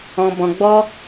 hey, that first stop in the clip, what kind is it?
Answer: plain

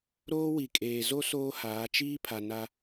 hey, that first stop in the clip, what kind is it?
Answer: ejective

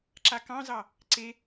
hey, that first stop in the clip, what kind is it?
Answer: click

